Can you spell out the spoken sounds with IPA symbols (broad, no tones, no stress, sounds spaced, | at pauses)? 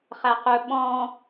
χ æ q ɵ ɓ ɔ̃